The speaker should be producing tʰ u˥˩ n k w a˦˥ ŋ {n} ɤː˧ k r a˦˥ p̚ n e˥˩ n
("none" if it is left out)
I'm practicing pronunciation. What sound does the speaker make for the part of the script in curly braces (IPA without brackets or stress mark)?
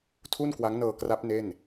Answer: n